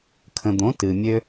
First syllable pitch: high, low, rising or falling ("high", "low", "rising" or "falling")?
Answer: low